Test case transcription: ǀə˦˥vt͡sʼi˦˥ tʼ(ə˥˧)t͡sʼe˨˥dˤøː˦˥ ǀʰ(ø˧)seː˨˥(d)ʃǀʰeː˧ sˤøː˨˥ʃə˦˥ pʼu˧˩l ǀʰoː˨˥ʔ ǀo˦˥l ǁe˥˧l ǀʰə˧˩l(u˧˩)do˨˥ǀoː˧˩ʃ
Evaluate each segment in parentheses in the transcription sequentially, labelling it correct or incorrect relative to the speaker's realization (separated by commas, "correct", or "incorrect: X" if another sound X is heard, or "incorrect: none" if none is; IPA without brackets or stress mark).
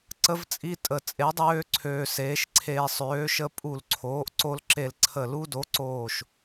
incorrect: ə˧˩, incorrect: øː˧, incorrect: none, incorrect: u˦˥